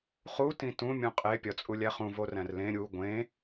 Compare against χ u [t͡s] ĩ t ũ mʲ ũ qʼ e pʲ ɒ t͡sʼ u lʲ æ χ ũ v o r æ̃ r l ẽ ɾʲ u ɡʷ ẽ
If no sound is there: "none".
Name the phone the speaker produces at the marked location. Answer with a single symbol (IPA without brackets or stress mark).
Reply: t